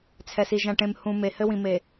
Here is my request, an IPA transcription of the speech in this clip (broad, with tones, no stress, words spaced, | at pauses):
t͡sʰɛ˨si˨ʒ ã˨ʈẽ˨mhũ˨ me˨hɘ˦wĩ˨me˨